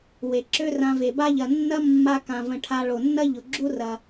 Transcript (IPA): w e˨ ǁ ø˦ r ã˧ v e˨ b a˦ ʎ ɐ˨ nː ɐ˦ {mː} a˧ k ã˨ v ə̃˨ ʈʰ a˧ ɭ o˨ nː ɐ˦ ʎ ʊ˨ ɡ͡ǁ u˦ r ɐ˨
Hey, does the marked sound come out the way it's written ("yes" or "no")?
yes